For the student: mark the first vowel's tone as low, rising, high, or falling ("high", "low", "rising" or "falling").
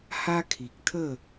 high